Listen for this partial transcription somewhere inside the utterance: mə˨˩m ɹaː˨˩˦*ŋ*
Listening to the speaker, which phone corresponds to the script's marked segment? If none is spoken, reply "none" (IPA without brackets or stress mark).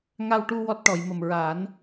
n